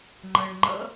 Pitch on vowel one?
low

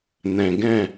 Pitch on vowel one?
low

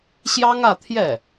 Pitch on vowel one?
high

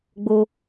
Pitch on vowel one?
low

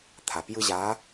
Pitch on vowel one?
low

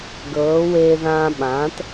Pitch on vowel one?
rising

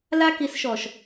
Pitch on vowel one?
high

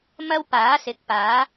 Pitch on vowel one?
high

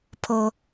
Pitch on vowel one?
high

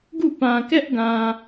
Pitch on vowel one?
falling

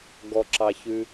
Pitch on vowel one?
low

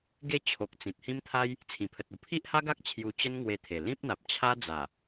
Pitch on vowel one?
falling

